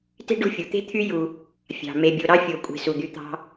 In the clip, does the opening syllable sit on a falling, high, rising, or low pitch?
high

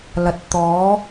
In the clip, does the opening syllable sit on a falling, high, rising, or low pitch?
low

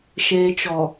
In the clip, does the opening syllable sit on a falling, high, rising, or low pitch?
low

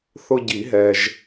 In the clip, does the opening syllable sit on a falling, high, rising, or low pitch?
high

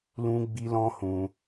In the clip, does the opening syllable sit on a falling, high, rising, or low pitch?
high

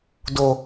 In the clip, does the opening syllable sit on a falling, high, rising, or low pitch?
low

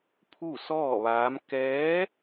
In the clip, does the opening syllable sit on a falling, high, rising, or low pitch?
falling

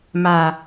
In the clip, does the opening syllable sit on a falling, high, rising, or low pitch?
low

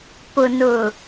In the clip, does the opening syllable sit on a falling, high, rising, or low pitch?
low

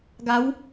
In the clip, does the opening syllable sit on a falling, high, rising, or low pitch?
rising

